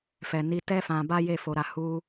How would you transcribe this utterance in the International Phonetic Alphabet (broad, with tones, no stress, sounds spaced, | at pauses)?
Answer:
f ɛ˨ n i˧ t ɛ˦ f ã˧ b a˦ j e˦˨ f o˧ ɾ a˧ h u˦